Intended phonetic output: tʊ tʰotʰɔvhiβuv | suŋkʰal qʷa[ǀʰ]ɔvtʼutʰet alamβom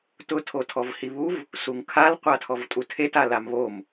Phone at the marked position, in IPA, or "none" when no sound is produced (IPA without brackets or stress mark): tʰ